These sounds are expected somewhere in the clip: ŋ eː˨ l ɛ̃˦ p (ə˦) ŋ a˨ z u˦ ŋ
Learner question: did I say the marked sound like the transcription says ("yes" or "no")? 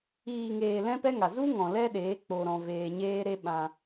no